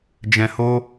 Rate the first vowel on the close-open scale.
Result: mid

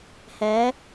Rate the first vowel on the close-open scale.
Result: mid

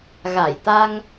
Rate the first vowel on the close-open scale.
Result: open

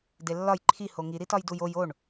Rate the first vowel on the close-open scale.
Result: mid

